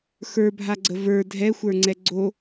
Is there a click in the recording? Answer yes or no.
yes